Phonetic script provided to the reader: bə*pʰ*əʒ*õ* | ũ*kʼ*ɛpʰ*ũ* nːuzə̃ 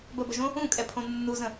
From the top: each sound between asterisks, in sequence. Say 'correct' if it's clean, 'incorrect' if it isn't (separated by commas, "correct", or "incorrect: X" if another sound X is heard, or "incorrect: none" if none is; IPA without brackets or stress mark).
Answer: incorrect: b, correct, correct, incorrect: õ